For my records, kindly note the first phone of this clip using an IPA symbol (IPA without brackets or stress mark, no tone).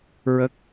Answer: ɹ